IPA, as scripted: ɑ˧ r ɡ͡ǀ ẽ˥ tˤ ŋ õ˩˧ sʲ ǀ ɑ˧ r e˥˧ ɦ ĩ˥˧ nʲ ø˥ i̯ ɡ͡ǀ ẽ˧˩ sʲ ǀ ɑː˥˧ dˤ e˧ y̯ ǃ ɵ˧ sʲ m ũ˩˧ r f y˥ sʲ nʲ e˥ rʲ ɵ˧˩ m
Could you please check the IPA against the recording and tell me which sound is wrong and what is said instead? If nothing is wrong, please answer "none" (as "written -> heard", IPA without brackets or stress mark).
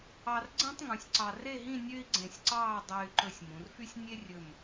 õ˩˧ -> ũ˩˧